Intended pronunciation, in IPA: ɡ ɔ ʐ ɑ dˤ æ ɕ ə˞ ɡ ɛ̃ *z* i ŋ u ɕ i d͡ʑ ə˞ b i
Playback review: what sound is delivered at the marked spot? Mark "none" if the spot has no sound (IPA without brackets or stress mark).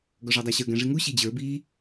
ʐ